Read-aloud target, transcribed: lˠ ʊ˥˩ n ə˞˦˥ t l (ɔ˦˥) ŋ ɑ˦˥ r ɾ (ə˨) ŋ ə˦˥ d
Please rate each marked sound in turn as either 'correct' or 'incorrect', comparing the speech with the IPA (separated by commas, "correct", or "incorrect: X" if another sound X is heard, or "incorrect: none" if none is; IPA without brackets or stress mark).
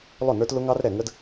incorrect: ʊ˦˥, incorrect: ɛ˨